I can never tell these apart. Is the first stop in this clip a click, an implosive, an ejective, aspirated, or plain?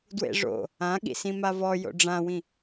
plain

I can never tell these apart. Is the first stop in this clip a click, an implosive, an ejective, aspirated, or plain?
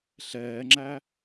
click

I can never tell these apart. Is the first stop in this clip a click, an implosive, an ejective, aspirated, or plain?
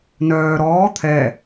aspirated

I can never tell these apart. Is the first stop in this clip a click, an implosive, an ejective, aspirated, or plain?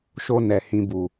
plain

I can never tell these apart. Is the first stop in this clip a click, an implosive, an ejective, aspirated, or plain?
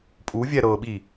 ejective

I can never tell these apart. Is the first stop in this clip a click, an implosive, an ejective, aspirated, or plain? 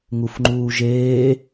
click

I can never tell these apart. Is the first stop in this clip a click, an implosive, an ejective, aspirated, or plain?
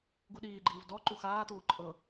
plain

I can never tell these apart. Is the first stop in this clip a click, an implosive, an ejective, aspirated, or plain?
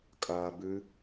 ejective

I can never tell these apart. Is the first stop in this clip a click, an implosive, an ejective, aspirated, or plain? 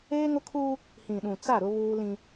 aspirated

